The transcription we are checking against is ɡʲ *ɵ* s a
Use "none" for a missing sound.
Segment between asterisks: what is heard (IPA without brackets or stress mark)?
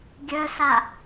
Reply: œ